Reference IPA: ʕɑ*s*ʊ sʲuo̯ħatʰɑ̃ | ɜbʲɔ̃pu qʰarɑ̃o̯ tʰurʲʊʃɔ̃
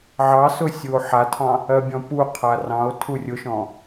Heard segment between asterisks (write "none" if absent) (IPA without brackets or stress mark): s